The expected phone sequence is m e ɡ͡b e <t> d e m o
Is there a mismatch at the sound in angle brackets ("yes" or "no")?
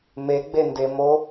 yes